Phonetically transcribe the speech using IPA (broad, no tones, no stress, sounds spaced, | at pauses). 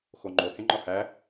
x o ŋ͡ǃ o h ẽ ŋ͡ǃ ɒ h æ